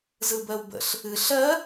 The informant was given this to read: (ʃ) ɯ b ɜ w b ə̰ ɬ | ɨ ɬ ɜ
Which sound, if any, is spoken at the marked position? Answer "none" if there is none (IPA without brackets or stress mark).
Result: z